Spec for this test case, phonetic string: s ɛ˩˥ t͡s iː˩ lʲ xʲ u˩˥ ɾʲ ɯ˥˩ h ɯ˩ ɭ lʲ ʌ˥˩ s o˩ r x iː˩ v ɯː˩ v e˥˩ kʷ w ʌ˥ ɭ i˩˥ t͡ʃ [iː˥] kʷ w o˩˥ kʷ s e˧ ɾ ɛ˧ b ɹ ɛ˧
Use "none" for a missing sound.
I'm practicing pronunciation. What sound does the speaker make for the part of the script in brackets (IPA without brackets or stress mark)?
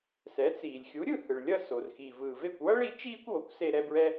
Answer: iː˥